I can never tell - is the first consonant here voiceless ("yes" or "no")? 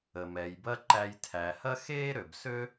no